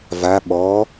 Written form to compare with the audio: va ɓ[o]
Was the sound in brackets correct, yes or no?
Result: no